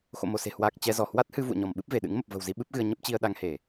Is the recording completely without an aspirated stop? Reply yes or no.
yes